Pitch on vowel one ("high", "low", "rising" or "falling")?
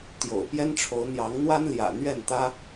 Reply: low